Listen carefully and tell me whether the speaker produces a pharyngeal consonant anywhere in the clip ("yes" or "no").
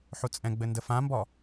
yes